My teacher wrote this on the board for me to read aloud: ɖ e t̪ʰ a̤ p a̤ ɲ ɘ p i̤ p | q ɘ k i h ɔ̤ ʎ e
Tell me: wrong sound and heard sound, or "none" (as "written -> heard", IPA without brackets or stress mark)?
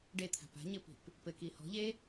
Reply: q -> p